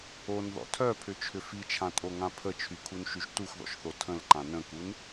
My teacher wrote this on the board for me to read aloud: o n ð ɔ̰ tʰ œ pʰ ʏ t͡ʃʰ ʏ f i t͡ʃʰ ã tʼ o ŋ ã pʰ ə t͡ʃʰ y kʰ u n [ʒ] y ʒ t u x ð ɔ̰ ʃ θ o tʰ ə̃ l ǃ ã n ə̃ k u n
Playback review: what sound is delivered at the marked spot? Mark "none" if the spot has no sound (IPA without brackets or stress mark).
ʃ